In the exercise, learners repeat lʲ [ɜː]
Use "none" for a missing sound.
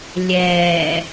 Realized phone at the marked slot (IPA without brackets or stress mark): ɛː